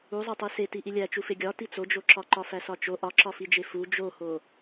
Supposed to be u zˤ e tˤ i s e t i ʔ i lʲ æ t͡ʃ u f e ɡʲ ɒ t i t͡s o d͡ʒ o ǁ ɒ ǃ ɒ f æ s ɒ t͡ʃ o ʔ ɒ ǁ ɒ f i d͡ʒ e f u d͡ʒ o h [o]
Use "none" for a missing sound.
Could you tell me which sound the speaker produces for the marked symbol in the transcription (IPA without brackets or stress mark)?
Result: o